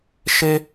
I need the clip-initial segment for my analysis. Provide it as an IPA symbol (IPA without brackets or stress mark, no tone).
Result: ʃ